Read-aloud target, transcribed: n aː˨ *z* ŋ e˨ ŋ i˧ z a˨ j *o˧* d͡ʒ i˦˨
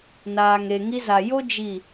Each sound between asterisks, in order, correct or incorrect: incorrect, incorrect

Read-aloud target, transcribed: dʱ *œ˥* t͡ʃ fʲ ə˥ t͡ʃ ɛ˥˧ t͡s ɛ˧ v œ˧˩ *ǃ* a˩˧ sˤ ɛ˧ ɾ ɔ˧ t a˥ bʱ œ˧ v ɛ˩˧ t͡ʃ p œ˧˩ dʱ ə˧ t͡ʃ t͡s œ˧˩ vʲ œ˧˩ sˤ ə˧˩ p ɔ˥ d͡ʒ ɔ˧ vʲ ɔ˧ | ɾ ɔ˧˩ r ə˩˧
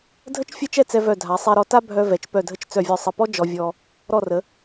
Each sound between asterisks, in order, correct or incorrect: incorrect, incorrect

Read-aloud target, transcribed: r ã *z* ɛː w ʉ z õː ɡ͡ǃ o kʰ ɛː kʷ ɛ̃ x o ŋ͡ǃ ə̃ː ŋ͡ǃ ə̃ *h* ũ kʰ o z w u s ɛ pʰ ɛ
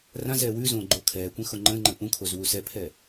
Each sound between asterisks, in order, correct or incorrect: correct, incorrect

